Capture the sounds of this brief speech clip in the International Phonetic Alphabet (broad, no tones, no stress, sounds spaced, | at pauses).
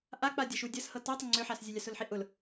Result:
ʔ a k͡p a dʲ a ʃ u dʲ ə s h ɤ t ɤ tˤ ə ŋ͡ǀ ø ħ a s zʲ ə lʲ a s ʊ l ħ i ʔ ʊ l